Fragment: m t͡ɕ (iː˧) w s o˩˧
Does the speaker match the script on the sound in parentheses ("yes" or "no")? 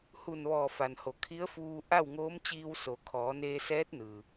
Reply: yes